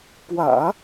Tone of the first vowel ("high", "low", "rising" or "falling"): low